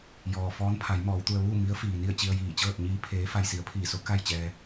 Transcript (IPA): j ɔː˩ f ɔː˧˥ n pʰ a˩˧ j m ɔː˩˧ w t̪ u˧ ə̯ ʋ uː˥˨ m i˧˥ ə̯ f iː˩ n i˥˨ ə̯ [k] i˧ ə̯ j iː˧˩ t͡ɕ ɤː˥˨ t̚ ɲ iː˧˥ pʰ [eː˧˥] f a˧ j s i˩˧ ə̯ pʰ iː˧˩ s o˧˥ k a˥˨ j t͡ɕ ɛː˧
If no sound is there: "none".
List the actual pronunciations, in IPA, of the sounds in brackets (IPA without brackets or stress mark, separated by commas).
t͡ɕ, eː˧˥